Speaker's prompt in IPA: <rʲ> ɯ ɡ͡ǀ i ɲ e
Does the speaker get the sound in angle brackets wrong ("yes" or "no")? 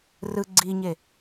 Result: yes